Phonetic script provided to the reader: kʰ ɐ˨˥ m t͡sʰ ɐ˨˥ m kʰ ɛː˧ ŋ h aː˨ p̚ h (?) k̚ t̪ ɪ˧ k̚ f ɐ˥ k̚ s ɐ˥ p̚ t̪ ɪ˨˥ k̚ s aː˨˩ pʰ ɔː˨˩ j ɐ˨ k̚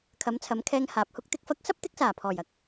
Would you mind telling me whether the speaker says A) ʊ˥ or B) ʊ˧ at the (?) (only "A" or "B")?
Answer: A